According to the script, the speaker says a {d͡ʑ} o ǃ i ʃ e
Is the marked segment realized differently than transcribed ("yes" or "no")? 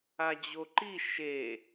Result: no